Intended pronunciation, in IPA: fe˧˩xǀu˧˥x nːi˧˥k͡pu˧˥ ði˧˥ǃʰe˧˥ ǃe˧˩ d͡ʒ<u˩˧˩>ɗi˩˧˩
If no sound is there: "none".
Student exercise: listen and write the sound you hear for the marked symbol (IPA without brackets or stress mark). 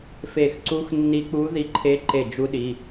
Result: u˧˥